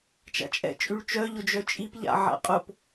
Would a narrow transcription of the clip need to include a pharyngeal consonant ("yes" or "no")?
yes